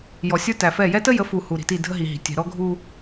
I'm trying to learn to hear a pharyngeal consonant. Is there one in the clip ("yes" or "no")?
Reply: no